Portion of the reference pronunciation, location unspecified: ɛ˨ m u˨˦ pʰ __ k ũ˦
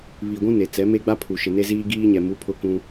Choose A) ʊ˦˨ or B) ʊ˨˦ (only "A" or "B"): A